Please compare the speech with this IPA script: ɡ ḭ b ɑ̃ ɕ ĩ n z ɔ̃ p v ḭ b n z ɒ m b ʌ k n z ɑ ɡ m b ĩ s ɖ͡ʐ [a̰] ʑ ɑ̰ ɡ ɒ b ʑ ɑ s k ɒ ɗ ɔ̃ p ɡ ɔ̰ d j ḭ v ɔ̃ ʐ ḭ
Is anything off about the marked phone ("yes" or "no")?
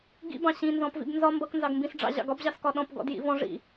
yes